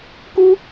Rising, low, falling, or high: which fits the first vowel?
high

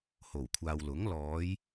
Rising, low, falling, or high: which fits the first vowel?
low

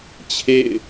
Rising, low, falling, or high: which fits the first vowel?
falling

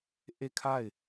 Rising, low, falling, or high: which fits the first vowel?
falling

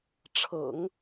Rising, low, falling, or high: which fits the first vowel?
low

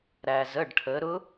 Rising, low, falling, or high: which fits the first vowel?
low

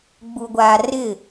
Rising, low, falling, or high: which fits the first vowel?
low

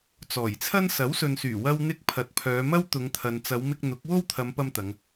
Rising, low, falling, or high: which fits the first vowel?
low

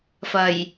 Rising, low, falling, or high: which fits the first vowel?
low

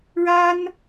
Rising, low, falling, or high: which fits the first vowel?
high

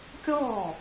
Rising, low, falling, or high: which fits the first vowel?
falling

